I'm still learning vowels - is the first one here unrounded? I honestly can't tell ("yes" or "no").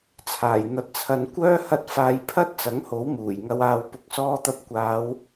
yes